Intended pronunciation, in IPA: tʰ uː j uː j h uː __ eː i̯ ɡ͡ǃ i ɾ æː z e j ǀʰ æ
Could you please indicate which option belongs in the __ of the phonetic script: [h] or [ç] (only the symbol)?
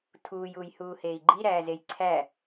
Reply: h